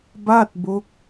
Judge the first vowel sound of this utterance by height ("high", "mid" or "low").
low